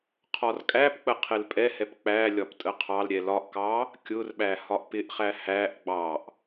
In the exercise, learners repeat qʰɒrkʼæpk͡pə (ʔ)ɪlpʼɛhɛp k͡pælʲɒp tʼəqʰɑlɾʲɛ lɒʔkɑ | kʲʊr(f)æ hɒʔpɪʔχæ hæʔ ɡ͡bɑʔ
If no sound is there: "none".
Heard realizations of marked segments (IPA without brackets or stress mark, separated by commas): qʰ, ɓ